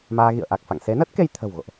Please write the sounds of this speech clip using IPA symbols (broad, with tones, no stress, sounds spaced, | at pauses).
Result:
m aː˧ ɣ ḭ˧˨ ə̯ ʔ a˨˩ k̚ f a̰˧˨ ŋ s e˨˦ n ə˦˥ t̚ k e˧ j t̪ʰ ə̤˨˩ w ɣ o̰˧˨ ʔ